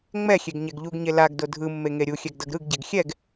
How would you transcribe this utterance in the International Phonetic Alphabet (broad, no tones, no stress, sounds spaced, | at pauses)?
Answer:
ŋ͡m ɛ xʲ e ɡ ɲ ɛ ɡ ʎ u ɡ ɲ e l a ɡ d o dʱ ɯ mː e ŋ e ɾʲ u xʲ ɛ ɡ d ʌ ɡ ɾ ɯ ɡ ɟ ɛ ɡ xʲ ɛ ɡ